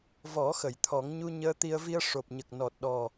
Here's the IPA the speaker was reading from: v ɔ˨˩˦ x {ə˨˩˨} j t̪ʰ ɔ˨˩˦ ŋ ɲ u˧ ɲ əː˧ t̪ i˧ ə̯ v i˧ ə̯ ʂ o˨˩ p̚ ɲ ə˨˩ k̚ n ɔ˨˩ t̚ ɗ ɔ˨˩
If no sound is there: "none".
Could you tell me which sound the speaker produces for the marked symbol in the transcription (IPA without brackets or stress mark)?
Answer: ə˨˩˨